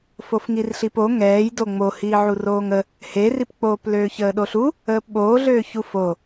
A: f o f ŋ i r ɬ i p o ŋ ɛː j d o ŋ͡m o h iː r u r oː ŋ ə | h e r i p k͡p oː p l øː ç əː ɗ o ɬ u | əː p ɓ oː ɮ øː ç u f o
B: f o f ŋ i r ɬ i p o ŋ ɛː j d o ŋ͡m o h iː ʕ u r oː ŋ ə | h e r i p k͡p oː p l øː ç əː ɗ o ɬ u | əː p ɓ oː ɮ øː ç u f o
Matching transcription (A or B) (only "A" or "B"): B